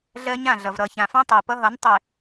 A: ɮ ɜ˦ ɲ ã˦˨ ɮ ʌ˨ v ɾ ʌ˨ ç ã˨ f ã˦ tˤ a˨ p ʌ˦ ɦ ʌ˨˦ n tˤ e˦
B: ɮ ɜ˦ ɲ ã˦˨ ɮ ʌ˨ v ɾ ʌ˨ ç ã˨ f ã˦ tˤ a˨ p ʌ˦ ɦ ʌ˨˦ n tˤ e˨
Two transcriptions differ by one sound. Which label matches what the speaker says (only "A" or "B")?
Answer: B